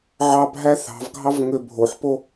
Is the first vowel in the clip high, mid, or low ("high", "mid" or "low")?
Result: low